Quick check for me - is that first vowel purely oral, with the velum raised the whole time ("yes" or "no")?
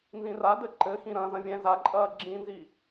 no